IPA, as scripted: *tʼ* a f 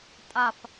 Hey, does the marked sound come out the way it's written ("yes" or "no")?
yes